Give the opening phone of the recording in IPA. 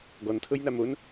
ɡ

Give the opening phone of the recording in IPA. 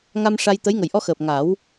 ŋ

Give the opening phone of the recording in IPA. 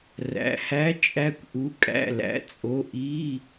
r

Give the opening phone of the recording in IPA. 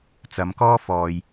t͡s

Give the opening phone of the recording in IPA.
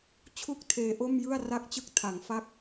t͡ɕʰ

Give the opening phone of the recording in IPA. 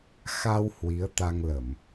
x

